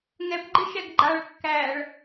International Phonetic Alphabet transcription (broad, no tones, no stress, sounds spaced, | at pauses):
ŋ ɛ p ɡ͡ǃ ɪ ʃ ɛ ɡ ɡ͡ǃ a ɭ kː æ ɭ